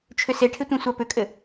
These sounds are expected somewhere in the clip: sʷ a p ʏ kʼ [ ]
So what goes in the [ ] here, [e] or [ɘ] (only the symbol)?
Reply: ɘ